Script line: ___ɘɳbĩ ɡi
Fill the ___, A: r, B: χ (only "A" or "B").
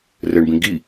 A